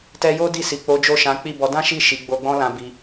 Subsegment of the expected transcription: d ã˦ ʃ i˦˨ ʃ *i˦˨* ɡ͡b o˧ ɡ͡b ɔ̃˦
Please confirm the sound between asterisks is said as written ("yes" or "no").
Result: no